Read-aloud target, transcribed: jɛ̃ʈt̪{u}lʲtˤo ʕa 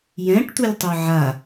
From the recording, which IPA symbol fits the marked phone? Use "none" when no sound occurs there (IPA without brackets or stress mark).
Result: u